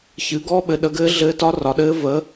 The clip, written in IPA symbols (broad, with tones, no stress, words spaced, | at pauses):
çɨ˩˥ɡɔ˦˥ ɓɘ˩˥ ɗə˩˥ɡɘː˦˥ ɮɘː˦˥tɒ˦˥ rɒ˩˥ɗɘː˦˥ və˩˥